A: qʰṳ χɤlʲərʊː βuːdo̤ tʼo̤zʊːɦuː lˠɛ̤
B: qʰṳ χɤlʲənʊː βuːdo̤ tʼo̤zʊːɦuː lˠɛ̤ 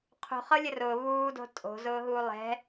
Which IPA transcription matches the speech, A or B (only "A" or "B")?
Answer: A